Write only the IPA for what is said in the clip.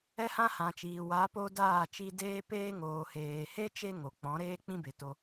ɛ˦hã˦hã˨t͡ʃiː˨ wa˨˦po˧ daː˦˨ t͡ʃi˧deː˦peː˦ ŋoː˨heː˨he˦ t͡ʃe˦ŋo˨k͡pɔ̃˨˦ ɾeː˦k͡pĩ˦be˨to˧

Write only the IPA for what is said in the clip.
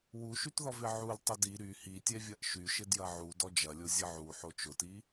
wuʃytðɔv ɪʕul tˤədi ɾy hitʲɛvʲɐʔ ʃyʃɪ djɐʕu dɔd͡ʒɐlʲo zʲəʕu ħot͡ʃʊti

